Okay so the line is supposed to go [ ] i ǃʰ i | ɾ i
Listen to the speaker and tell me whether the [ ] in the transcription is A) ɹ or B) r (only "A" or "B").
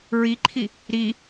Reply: A